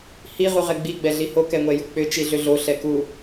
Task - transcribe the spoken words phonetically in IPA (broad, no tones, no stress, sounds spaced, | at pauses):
h i ʁ u ʁ ɛ ɡ͡b i ɡ͡b ɛ ɮ i h o k ɛ ŋʷ ɛ j u k͡p ʏ t͡ʃ i ɮ ʏ ɮ o ɬ ɛ k u